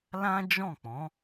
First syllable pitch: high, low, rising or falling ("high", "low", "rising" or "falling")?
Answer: high